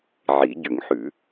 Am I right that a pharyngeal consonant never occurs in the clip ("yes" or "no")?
no